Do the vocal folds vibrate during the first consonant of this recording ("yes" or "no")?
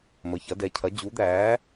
yes